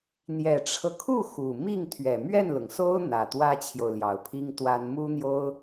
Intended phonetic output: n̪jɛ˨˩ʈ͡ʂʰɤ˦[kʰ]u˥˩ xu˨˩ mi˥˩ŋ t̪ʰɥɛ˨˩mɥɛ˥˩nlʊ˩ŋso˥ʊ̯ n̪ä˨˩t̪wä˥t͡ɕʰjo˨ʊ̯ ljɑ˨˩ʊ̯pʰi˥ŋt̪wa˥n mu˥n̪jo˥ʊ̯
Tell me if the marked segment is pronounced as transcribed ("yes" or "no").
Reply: yes